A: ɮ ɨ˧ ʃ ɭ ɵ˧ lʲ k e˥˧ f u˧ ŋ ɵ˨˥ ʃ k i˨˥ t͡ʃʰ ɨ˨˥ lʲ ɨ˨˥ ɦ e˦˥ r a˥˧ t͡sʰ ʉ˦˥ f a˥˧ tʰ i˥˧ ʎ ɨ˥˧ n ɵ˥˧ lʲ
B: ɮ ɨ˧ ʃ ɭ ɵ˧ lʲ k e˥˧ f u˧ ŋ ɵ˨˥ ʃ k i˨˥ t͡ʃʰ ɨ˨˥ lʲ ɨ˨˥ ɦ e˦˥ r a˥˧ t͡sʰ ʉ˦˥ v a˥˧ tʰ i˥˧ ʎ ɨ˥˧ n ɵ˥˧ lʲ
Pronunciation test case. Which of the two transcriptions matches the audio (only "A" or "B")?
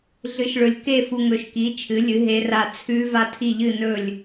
B